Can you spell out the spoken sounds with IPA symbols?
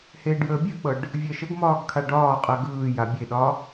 h eː ɖ j əː bʲ ɜ k͡p ɤ ɖ | vʲ ɜ ʃ ə ɡ m ɒː ɡ kʰ a ɖ ɒː qʼ ɜ ɡ ɯː j a bʲ e ɗ ɒ

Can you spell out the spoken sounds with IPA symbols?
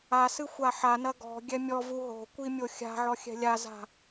a s ɨ xʷ a ħ a n ɐ ɡ ɔ̤ ɡʲ ɛ mʲ ɔ v u ɦ o̤ kʷ i mʲ o xʲ a̤ ʕ ɔ xʲ ɛ̤ lʲ a z a̤

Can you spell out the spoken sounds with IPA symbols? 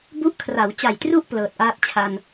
b u˦˥ ʔ kʰ r a˩˦ w t͡ɕ a˨˩ j t r u˥˩ ʔ p l ɤː˨˩ t̚ ʔ aː˥˩ t̚ t͡ɕʰ a˨˩ n

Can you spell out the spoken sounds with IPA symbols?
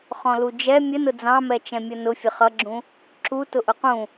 χ ɔ̃ l u d͡ʒ ɛ mʲ ə n ʊ d͡z ɑ̃ m ɛ t͡ʃ ɛ̃ mʲ ʌ n ʊ fʲ ə χ ʌ ɡ͡ǁ ũ | ǁ u t ʊ ʔ ʊ q ũ

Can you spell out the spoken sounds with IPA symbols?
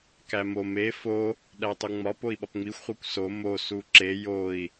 k æ m o m e f o | ɗ æ tˤ u ŋ͡m ɒ p o i̯ ɓ ɒ p ŋ͡m i xʷ χʷ e kʷ s o m o s u ǁ e j o i̯

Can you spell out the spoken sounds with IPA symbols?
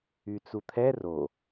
y t͡s u t̪ʰ ɛ r o

